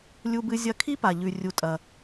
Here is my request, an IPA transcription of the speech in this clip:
lʲ u˧ b ɨ˧ zʲ ɐ˧˥ kʰ i˥ p a˩ ʎ ʉ˩ rʲ u˩ tʼ ɐ˩

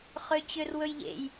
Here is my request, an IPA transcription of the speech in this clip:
χ ø t͡ɕ ø r w ɵ j ʎ ḛ j

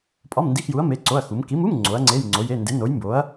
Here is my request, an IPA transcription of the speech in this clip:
pʼ ɒ˧˥˧ m n d i˧˥˧ x j u˨˥ ɐ̯ m e˧˥˧ ǀ o˧˥˧ ɐ̯ x u˨˥ m k i˨˥ m u˧˥˧ m ŋ͡ǀ o˨˥ ɐ̯ ŋ͡ǀ e˧˥˧ j ŋ͡ǀ o˨˥ j e˧˥˧ n d e˨˥ n o˨˥ j m b o˨˥ ɐ̯

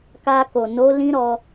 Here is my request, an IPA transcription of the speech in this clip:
k a˧ k o˨ n o˨˦ l ĩ˦ ɾ ɔ˧

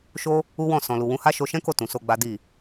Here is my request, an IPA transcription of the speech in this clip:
ʃ o˦ | u˦ w ɔ̃˦˨ s ɔ̃˨ l u˨ w ũ˨˦ h a˦ ʃ o˧ ʃ ɛ̃˦ k o˦˨ t ũ˨ s o˧ ɡ͡b a˦ d i˦˨

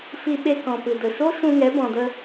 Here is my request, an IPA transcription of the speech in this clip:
f i˧ ɓ e˧ k ɔ̃˨ p ɨ˨ d ə˨ ʃ o˦ ʃ ũ˧ ŋ ɛ˨˦ b ɔ̃˨ d ə˧

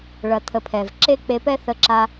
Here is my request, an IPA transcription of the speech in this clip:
ɭ ɐ˧ t̪ʰ ə˧ pʰ ɛ˨ v ǁ e˦ k͡p e˧ p ɛ˦ θ ə˧ ǁ a˧

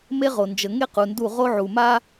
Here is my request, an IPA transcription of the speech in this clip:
m e˦ ʁ o˨ n d͡ʒ ə˨ ŋ e˦ q u˨ n d u˦˨ ʁ o˦ ʕ u˨ m a˦

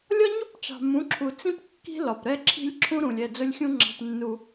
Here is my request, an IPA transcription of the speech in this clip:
lʲ ɒ˦ ɲ u˦ p t͡ʃ ɑ̤˨ m ũ˨˦ ǁʰ u˨ t͡s ĩ˦ p kː i̤˦ l ɒ˨ p ɾ ɛ˦ ǁʰ i̤˦ lʲ ǁʰ ũ˦ ɾ ũ˨ lʲ ɛ˦˨ d͡z ʊ˦ lʲ xʲ ũ˦ ŋ͡ǁ ɑ̤˦ p nː u˦

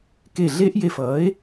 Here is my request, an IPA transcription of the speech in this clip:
k e˧˩ ɮ e˦˥ ʔ j e˧˩ f ʌː˩˥ e̯

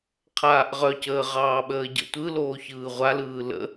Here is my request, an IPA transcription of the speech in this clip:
qʰ aː ʔ ʁ œ c əː ʁ ɑː ɓ əː ɟ ə̰ tʷ ɯ l oː ç ɯː ʁʷ a l ɯː l ə̰

